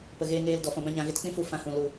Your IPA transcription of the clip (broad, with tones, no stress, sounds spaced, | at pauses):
p ə˨ ɣ eː˧ ŋ eː˧ l d ɔ˨ f ɔ̃˨ b ã˧ ɲ ã˨ ɣ e˧ t k͡p ĩ˦ f u˦˨ f ã˧ h ũ˨ l u˨